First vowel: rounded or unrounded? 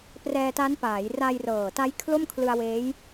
unrounded